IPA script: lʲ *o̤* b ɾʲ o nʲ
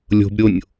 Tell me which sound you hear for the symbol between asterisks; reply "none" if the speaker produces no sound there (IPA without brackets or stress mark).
o̤